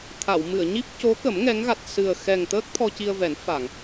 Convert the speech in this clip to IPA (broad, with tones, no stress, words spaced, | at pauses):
t̪ʰa˨˩˨wmɨ˨˩˨ə̯ɲi˦˥p̚ co˧˥kə˨˩˦m ŋɛ˧˥ŋ ɣa˨˩t̚sɨ˨˩ə̯xɛ˨˩ŋt̪əː˦˥k̚ t̪ʰɔ˧ci˧ə̯vɛ˨˩˦n fa˨˩˨ŋ